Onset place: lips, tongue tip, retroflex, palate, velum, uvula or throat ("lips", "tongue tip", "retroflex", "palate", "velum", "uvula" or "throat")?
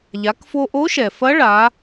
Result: palate